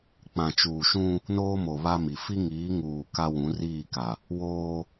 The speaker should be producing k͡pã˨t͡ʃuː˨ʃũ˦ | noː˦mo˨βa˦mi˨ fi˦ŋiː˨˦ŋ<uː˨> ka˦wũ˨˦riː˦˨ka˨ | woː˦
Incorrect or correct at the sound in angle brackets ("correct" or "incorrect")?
correct